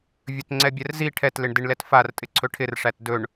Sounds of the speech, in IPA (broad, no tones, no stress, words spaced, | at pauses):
vʲɵtŋ͡ǀɛbʲɛrzi ʈʰɛtlɪɳ dɪɳlɛtfar tʼɪǀʰɵʈʰɪr ʂætdɵɳ